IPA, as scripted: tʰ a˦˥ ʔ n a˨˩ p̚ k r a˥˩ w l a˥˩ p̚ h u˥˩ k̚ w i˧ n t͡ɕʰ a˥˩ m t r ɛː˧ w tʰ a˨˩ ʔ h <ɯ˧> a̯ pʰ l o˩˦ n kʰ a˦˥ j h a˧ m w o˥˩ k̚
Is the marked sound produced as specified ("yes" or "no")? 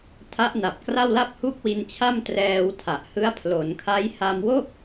no